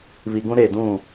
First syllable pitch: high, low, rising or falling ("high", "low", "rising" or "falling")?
low